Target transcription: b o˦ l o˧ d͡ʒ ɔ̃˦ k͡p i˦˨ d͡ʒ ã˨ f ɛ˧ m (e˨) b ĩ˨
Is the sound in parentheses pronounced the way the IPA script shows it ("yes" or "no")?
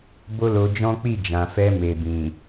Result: yes